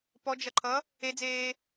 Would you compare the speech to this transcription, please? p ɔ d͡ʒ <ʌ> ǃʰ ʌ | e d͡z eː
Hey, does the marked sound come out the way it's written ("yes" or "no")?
yes